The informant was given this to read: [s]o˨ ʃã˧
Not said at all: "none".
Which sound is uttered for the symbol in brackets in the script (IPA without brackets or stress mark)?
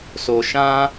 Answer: s